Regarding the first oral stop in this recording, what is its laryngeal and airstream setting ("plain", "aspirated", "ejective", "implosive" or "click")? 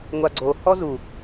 click